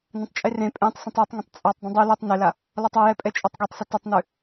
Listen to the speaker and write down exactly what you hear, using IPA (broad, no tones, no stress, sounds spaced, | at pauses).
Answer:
n ə̃ tˤ t͡ʃʼ e r ẽ pʼ ẽ tˤ s ə̃ tˤ ɛ tˤ ŋ ə̃ tˤ t͡sʼ ɔ tˤ dˤ ə̃ dˤ ʉ l e tˤ n e l a | l ɔ tˤ ɔ j ɛ pʼ ɛ t͡ʃʼ ɔ tˤ ɡ e tˤ s ʏ t ə tˤ n ʉ